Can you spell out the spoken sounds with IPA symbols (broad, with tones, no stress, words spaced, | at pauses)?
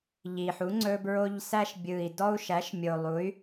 ʎi˨˩ħu˩˥ ŋ͡ǀɵ˧bɹo˧ʎ sæ˧ʃbʲɯ˨˩i̯dɔ˧u̯ʃæ˩˥ʃ mʲo˨˩lˠu˩˥y̯